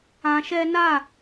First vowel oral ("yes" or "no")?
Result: no